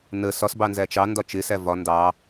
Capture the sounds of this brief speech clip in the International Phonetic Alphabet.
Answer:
n ə s ɒ s b ɑ n z æ t͡ʃ ɑ n d ɒ t͡ʃ ɪ s æ v ɒ n d ɑ

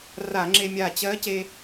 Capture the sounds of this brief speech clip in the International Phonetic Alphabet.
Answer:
r a˧˩˧ ŋ͡ǁ e˧ mʲ aː˧˩ t͡ɕ ɜ˧˥ c e˧

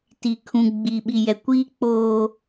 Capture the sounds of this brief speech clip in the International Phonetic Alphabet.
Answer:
t i˨ kʰ ũ˨ ɡ͡b i˨ ɓ i˨ j ɛ˨ kʷ iː˦ k͡p oː˦

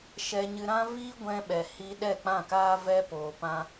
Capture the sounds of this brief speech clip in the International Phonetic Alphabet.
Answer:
ʃ ɛ˧ ɲ ɨ˧ ɾ ã˦ v i˦ ɡʷ ɛ̃˧ ɓ ɛ˨ h i˧ ɗ ɛ˦˨ k͡p ã˦˨ k aː˦ v ɛ˦ p oː˧ p ã˦

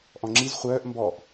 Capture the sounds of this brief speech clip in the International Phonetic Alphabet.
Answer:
ʔ ɔ̃ ŋ͡ǁ i z χʷ œː ʔ m b ɔ ʔ

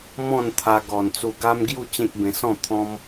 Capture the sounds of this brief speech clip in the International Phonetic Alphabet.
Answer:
m ɔ̃˥˧ n t̪ʰ a˧ ɡ ɔ˨˩ n t͡s u˧ ɡ a˦ m ɡ j u˥˧ t͡ɕ ẽ˦ k̚ b ẽ˧ s ɔ̃˥˧ t̪ʰ ɔ̃˦ m

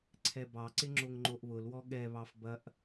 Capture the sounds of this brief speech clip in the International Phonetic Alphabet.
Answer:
ǀʰ ɛ b ɑ ǀ ɪ ŋ͡ǁ o ŋ ŋ͡ǃ o ʔ β ʊ l w ɔ ɠ ɛ β ɑ f b ɐ ʔ

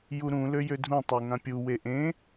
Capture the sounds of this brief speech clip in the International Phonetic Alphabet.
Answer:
j u ɾ ũ l ø j ø dʱ ũ tˤ e ŋ ã pʲ u w e ʔ ẽ

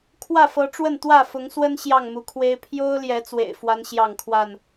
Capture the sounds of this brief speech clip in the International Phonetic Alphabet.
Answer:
kʰ w ä˥˨ f ɤ˨˦ ʈ͡ʂ w ə˥˨ n t̪ w ä˥˨ f ʊ˨˦ ŋ s w ə˦ n ɕ j ɑ˥˨ ŋ m u˨˦ kʰ w e˦ ɪ̯ pʰ j o˦ ʊ̯ l j ɛ˨˦ t͡s w ḛ˨˩ ɪ̯ f w a˦ n ɕ j ɑ˥˨ ŋ kʰ w a˥˨ n

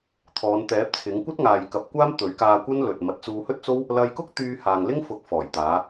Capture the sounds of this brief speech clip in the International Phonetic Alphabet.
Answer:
t̪ʰ ɔː˨˧ n t̪ ɛː˨˥ p̚ t͡sʰ ɪ˨˥ ŋ kʷ ɐ˥ t̚ ŋ aː˨ j k ɐ˨˥ p̚ kʷ aː˥ m t̪ ɵ˨˥ ɥ k aː˧ kʷ ɐ˥ n l ɵ˨ t̚ m ɐ˨˥ t̚ t͡s uː˧ h ɵ˥ t̚ t͡s o˥ w | l ɐ˧ j k ʊ˥ k̚ t̪ yː˧ h aː˨ ŋ l ɪ˥ ŋ f ʊ˨˥ k̚ f ɔː˨˩ j t̪ aː˨˧

